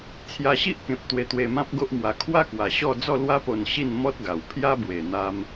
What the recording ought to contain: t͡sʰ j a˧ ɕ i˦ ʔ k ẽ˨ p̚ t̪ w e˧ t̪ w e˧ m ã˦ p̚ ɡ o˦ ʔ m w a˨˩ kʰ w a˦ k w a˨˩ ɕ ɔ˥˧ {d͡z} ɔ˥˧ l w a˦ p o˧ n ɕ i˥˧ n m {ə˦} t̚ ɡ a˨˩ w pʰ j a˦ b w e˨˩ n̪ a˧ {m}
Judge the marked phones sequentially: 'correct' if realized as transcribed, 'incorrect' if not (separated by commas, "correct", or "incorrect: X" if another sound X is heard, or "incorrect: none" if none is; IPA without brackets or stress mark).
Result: correct, incorrect: ɔ˦, correct